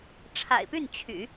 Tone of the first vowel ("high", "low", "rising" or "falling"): low